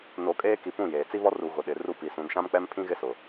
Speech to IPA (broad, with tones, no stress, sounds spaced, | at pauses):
n o˨ kʼ eː˦ k i˨ p ũ˦˨ j eː˨ t͡s i˦ β ɔ˦ r u˨ ɣ ʊ˨ ɗ ɪ˨ r u˦ p i˨ s ũ˨ n ʃ ã˦ m k͡p ɛ˦ m pʰ ĩ˦ ɣ ɪ˦ s ʊ˨